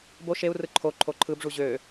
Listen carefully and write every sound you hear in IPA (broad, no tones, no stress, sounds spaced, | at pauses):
b o ʃ e u̯ r ɯ ǃʰ o ǃʰ o ǃʰ ɯ b ʐ u ʑ ø